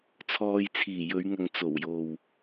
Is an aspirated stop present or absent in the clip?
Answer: present